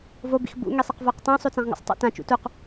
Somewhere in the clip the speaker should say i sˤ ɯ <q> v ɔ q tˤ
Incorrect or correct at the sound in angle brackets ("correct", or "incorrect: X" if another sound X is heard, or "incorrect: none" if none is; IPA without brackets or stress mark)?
correct